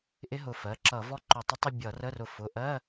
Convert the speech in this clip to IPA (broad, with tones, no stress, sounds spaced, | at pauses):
ʔ ɪ˦˥ ɦ ʊ˧˩ f ɜ˩˧˩ ǁ ʌ˧˩˧ v ɔ˦˥ ǃ ʊ˧˩ tˤ ə˦˥ tˤ ɪ˥˧ bʲ ʌ˧˩˧ r ə˧˥˧ r ʊ˧˩ f ʊ˩˧˩ ʔ ɜ˧˥˧